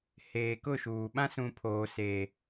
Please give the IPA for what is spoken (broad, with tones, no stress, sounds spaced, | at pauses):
h eː˨ k ʊ˦˨ ʃ uː˨ ɓ ã˦ s ũ˨ pʰ oː˨ s eː˨